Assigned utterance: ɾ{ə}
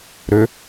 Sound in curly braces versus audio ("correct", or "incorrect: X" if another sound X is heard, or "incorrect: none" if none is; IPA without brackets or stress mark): incorrect: ø